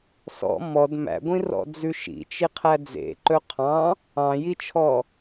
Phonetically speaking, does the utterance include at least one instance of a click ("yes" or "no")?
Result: yes